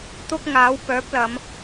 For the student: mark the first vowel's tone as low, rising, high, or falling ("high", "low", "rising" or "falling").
high